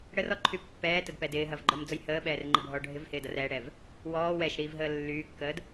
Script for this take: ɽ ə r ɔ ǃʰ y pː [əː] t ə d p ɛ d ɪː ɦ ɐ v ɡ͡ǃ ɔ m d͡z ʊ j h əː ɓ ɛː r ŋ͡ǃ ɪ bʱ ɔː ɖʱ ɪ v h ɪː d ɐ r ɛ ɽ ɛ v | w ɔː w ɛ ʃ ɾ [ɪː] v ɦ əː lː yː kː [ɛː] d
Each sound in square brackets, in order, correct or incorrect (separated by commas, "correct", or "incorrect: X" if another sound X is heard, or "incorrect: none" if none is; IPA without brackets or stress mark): incorrect: ɛː, incorrect: iː, incorrect: əː